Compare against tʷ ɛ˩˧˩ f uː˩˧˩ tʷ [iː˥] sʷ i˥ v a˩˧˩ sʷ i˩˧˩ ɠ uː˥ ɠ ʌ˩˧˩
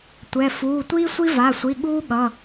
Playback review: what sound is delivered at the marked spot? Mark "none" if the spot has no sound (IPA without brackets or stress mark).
iː˥